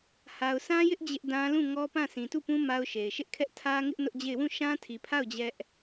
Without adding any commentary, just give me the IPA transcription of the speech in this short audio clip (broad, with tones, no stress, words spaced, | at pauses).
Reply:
ha˨ʊ̯sʰã˦jɪ˦ʔ d͡ʑɪ˦ʔdã˦ lũ˦˨ŋɔ˦pã˦˨ sĩ˨tu˦˨pũ˦ ma˦ʊ̯ʃe˨ɪ̯ ʃɪ˦ʔkʰɛ˦ʔ tʰä˦ŋɪ˦ʔ nʊ˦ʔd͡ʑe˦˨ɪ̯ wũ˦˨ʃã˦tʰi˨pʰa˦˨ʊ̯ d͡ʑɛ˦ʔ